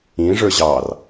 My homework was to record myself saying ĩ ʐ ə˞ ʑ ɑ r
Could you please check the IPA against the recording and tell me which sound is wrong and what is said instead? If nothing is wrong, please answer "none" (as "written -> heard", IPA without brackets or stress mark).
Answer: none